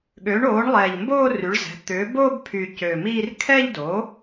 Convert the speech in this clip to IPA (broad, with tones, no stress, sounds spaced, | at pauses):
ɠ ø˩˥ ɳ oː˩˥ ɳ lˠ ɛː˨˩ ʎ m b oː˥˧ r y˩˥ ɭ z ɛ̤˩˥ t̪ ʏː˩˥ b oː˥˧ b pʰ yː˨˩ c ø˨˩ m iː˥˧ r kʰ ɛ˥˧ ʎ d oː˩˥